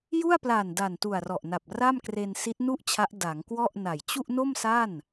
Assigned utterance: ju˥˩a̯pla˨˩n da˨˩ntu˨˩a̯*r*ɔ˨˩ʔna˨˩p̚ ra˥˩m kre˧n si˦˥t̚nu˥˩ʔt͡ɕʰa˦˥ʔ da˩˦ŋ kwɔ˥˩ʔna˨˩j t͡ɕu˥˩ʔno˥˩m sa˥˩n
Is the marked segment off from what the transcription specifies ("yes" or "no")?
no